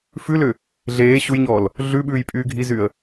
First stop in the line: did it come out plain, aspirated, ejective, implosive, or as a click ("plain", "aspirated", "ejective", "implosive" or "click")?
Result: implosive